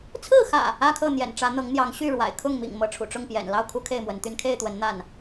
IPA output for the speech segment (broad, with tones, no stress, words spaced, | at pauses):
t͡sʰɹ̩˥˨xä̰˨˩ | ä˦kʰɤ˥˨n̪jɛ̰˨˩nʈ͡ʂä˨˦ n̪ɤ˨˦ŋn̪jɑ˨˦ŋɕy˥˨ɻwa̰˨˩ɪ̯ kʰʊ˥˨ŋmḭ˨˩ŋ mɤ˨˦ʈ͡ʂʰṵ˨˩ ʈ͡ʂʊ˥˨ŋpjɛ̰˨˩n lɑ˥˨ʊ̯kʰu˦ kʰe˥˨ɪ̯mwə˨˦nt̪y˥˨n kʰe˥˨ɪ̯t̪wə˨˦n n̪a˥˨n